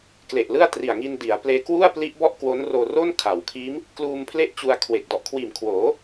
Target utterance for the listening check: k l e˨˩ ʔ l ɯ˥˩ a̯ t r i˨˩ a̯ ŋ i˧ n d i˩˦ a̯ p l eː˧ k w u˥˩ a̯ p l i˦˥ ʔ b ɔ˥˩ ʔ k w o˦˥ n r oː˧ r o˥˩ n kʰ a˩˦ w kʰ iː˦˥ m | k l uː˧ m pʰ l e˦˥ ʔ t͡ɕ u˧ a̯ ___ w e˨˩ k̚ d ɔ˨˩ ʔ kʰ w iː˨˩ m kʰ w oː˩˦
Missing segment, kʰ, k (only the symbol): kʰ